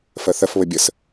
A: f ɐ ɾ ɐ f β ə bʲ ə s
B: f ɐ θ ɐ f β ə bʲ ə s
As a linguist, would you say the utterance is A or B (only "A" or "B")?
B